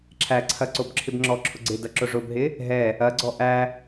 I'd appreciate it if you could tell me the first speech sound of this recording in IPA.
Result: ǁʰ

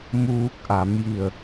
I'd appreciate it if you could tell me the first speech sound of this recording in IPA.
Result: m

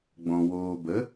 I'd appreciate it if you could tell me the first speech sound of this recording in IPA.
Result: ɡ͡b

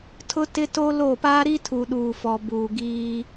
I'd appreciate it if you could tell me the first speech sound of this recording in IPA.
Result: tʰ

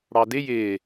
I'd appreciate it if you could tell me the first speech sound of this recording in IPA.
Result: ɽ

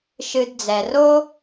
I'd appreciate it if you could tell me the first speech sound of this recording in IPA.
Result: ʃ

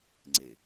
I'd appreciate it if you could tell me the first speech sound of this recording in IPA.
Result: ŋ͡ǀ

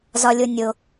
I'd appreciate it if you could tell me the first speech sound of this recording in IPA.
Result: z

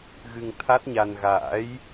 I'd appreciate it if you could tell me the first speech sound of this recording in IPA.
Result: ɣ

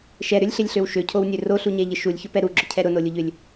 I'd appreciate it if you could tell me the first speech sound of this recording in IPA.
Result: ʃ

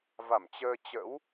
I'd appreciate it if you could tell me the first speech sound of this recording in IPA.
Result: v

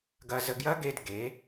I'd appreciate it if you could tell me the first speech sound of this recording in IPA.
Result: ɡ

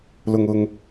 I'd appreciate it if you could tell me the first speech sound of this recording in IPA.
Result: l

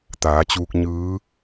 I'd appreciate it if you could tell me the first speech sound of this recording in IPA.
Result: t̪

